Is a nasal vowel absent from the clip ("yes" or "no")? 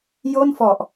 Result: yes